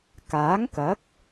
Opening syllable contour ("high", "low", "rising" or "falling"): rising